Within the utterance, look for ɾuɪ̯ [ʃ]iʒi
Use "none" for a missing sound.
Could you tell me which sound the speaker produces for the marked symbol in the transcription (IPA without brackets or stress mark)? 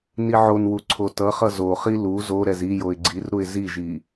z